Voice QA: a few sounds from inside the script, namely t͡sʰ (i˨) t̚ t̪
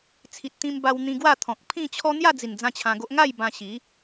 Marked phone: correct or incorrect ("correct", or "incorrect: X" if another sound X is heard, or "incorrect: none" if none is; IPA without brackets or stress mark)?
correct